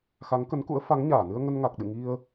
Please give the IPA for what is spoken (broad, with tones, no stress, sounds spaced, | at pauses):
x a˨˦ ŋ k ə˨˦ n k ṵ˧˥ ə̯ f a˨˦ ŋ ɲ aː˧˩ n ɨ˧ ə̯ ŋ ə˧ n ŋ a˨˩ k̚ ɗ ɨ̰˧˨ ŋ i˧ ə̯